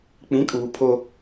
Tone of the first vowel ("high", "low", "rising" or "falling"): rising